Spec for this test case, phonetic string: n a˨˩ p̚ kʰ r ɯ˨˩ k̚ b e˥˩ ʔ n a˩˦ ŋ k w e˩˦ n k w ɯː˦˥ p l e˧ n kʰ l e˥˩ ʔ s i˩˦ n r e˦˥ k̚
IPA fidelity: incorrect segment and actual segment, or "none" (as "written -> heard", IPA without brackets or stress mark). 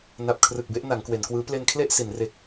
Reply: none